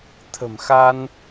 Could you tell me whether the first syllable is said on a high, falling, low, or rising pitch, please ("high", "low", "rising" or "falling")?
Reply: low